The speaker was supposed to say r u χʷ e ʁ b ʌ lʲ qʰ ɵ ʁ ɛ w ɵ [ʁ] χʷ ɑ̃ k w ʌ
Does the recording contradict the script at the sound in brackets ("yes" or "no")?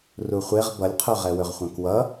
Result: no